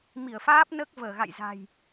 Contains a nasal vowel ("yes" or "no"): no